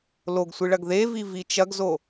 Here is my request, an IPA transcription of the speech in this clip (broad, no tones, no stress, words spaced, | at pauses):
loɡsʷɨɭɐɡ ðevivi t͡ʃɐɡzo